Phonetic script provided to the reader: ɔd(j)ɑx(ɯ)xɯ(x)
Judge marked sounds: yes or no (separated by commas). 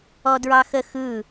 no, no, no